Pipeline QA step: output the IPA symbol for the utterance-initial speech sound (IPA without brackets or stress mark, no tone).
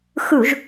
x